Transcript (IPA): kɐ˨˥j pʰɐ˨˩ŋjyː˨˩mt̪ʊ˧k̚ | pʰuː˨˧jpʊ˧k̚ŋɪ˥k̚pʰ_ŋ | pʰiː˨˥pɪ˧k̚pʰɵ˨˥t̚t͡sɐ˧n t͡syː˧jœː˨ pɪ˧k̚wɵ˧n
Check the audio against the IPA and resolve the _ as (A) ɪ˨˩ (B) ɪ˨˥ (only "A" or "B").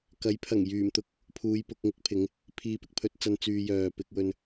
B